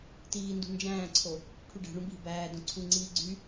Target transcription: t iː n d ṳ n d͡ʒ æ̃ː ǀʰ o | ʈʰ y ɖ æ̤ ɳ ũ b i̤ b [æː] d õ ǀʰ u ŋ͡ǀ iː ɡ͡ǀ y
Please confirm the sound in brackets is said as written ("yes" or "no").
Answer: yes